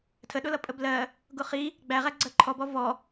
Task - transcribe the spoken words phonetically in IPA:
tʰ ə ɗ ʊ l ʌ pʼ ə b l ɜ | ɡ ʊ χ i | ɡ͡b æ ʁ æ ɡ͡ǀ ɜ ǃʰ ɔ b ɔ v ɔ

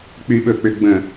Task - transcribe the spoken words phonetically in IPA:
k͡p y ɓ ɵ k͡p ʏ ɡ͡b ə̃

